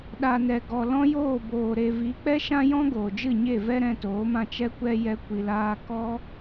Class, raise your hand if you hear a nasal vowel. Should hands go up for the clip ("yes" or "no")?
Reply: yes